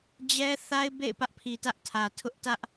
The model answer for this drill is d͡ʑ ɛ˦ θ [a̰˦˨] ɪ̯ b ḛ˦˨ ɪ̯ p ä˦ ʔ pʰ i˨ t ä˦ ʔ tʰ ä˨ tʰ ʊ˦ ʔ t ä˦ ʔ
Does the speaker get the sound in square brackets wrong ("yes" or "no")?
yes